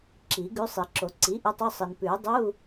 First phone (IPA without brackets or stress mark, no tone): ǁ